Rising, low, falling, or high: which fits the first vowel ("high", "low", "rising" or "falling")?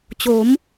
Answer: rising